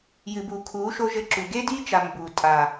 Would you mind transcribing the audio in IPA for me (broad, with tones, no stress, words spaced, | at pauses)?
jɨ˨bu˨kʰuː˨˦ʃo˧ ʒɘ˧ǁu˨ɡe˦di˦ t͡ʃa˨ mbuː˨ tʼa˨